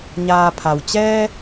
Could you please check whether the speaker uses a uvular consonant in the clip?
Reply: no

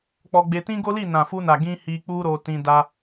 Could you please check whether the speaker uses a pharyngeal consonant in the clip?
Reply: no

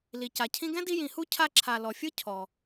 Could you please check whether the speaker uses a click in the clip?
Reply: yes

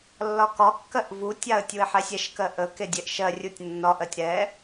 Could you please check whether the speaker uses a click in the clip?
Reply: no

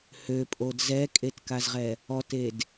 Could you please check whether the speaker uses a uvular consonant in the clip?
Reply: yes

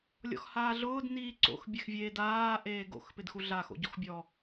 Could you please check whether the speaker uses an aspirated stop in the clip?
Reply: no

